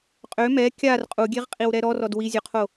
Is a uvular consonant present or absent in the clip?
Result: present